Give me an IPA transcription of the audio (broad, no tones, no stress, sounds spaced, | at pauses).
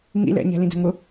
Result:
ŋ ḭ l ɛ̰ ɲ ɛ̤ l ĩ d ɛ̤ ŋ ʊ